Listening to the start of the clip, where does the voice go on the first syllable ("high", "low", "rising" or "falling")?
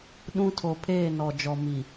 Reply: high